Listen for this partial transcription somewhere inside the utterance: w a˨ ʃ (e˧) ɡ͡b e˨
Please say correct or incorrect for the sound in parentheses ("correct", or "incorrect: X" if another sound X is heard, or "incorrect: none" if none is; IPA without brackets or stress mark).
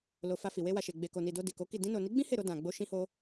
incorrect: e˨